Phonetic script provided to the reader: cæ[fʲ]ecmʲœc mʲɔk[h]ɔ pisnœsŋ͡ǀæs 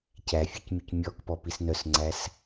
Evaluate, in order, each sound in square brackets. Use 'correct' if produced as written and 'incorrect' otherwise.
correct, incorrect: p

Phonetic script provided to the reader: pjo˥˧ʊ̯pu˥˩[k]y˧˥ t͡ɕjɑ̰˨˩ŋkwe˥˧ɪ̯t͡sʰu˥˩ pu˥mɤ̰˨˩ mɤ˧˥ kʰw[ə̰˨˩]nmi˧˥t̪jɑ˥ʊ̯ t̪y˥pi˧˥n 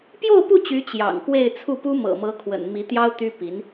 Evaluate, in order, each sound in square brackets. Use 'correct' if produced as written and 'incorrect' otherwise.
incorrect: t͡ɕ, correct

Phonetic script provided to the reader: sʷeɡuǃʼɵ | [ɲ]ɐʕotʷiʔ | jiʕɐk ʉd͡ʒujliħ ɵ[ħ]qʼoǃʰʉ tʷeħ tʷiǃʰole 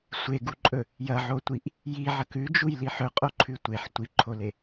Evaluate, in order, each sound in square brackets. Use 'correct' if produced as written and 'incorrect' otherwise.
incorrect: j, incorrect: none

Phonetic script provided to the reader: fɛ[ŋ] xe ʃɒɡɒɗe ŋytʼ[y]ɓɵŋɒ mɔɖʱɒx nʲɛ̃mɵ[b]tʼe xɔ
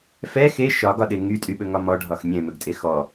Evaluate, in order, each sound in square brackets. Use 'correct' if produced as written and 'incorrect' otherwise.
incorrect: none, correct, incorrect: ɡ

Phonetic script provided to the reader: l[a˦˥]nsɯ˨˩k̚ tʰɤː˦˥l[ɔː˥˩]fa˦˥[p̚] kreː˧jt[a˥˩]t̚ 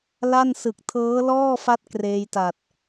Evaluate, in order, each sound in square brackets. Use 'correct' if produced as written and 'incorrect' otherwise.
incorrect: a˥˩, correct, incorrect: t̚, incorrect: a˨˩

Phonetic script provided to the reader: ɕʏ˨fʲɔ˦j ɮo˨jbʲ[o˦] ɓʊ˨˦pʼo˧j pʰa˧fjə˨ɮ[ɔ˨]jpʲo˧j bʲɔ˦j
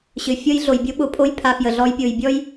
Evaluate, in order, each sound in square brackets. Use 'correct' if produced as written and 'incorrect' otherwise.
correct, incorrect: ɔ˦

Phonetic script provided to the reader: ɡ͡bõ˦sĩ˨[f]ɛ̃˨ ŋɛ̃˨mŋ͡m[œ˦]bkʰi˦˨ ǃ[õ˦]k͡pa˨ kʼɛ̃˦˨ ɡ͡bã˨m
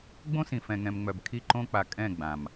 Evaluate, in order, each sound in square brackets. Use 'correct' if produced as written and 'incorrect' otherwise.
correct, incorrect: œ˨, correct

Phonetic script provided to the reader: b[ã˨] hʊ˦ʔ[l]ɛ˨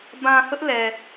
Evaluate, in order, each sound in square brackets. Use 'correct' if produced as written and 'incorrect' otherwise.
correct, correct

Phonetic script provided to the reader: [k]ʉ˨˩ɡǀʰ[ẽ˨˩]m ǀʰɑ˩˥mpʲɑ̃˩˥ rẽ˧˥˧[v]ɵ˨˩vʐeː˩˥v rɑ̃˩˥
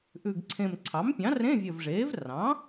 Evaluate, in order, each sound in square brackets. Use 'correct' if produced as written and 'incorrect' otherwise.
incorrect: ʔ, correct, incorrect: vʲ

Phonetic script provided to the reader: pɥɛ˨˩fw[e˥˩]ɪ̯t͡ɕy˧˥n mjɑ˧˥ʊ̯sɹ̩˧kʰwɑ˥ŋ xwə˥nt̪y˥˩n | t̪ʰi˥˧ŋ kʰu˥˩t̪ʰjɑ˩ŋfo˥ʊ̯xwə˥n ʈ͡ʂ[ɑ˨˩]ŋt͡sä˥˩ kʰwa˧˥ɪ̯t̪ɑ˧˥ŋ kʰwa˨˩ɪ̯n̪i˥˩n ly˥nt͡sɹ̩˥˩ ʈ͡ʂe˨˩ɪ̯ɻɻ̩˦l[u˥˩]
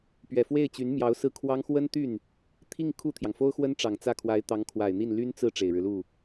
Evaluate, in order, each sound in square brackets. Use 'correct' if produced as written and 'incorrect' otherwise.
correct, correct, correct

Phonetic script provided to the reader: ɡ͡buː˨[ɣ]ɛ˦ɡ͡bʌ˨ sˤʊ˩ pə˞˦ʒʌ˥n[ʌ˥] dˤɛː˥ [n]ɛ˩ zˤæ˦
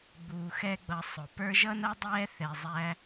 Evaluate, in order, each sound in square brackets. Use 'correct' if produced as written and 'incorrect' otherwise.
incorrect: x, correct, incorrect: θ

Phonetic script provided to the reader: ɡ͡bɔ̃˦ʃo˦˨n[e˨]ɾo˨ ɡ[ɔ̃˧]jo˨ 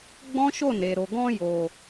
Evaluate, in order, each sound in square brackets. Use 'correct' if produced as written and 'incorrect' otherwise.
correct, correct

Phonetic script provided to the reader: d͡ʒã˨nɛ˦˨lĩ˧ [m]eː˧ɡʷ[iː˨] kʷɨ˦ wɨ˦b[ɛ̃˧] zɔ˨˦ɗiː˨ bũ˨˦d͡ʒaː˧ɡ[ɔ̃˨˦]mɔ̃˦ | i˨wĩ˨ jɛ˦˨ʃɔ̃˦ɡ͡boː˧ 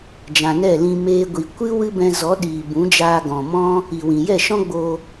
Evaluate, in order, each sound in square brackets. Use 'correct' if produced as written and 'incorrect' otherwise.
correct, incorrect: i˨, correct, incorrect: ɔ̃˨

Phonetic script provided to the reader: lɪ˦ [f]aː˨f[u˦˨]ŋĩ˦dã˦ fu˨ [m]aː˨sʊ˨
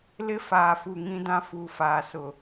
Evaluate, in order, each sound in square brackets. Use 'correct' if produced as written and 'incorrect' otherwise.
correct, incorrect: u˨, incorrect: f

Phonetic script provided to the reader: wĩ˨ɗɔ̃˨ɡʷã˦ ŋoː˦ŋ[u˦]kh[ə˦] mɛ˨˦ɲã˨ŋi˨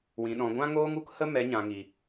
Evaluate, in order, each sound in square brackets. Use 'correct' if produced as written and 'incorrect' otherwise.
correct, correct

